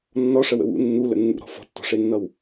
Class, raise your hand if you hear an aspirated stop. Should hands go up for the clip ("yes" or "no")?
no